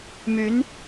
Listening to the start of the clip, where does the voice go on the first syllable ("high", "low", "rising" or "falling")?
rising